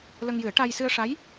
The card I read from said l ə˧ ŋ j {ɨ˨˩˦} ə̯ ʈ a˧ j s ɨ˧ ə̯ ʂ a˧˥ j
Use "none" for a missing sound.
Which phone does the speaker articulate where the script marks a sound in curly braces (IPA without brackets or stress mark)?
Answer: ɨ˨˩˦